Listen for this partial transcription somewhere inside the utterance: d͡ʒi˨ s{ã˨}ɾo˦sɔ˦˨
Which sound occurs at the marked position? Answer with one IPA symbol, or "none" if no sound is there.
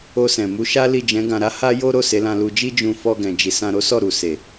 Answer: ã˧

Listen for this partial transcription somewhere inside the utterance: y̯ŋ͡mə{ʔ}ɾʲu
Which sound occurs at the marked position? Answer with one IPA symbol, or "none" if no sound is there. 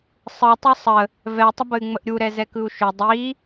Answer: ʔ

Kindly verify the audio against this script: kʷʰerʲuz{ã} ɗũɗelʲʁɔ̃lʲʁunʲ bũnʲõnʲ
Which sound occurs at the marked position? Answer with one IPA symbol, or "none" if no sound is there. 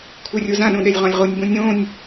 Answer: ã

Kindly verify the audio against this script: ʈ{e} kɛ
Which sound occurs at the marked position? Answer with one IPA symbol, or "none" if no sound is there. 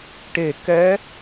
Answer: e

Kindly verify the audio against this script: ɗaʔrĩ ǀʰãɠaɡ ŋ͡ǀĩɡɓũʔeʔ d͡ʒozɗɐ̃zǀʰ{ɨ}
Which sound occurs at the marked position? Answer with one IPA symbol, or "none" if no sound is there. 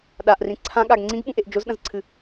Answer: ɨ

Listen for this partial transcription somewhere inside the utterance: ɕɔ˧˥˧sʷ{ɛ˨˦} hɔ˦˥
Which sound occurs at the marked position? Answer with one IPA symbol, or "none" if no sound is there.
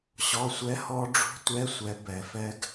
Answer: ɛ˦˥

